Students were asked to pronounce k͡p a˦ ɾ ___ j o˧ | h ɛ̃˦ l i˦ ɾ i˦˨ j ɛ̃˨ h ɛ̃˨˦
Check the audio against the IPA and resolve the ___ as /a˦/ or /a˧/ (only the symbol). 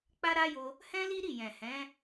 a˦